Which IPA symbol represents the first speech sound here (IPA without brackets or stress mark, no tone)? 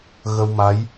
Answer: ɣ